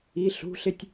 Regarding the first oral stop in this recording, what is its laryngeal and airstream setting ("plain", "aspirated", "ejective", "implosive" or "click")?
plain